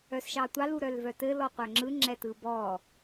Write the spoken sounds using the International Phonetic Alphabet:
œsʃɑtʷɑl uɾœlvœtɘ lɔqʷœŋ͡ǁɯ ŋ͡ǁɛtɯbɔ

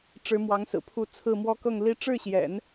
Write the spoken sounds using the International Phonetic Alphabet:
ʈ͡ʂɻ̩˧˥ mwɑ˧˥ŋsɹ̩˨˩pʰu˧˥ t͡sʰɹ̩˥˩mwɔ˥ kɤ˥˩ŋli˥ ʈ͡ʂɻ̩˥˩ɕjɛ̰˨˩˦n

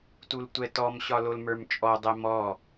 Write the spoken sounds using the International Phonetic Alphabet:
tultʷɛtɔmɕɒ lolmə˞mt͡ʃʼɔdˤɛ mɔ

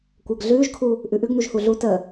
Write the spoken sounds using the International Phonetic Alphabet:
kʷəːɡɮʉːʒkʰu | ʔʉʔʉɡnuʒ huɮu tə

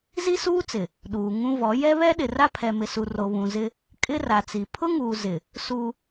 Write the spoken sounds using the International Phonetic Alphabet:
zi˦suː˦t͡sɪ˨ | ɗuː˨ ŋũ˦vɔ˨˦ jɛ˦βɛ˦ɗɪ˨ ra˦pʰɛ˨mɪ˨su˨ ro˨βũ˨zɪ˦ | kʼɪ˦ ra˨t͡si˨ pʰʊ˦ŋuː˨ zɪ˨ | su˦

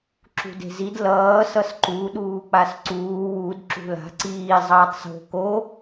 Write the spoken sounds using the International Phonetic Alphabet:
ǁṳde̤zid lʌː sʌsǃu ɗuːk͡pasǀuː wud ǁṳla̤ ǀiː zˤʌːtˤso̤ ko

